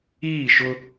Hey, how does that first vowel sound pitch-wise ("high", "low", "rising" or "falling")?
falling